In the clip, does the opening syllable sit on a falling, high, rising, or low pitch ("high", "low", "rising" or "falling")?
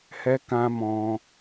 high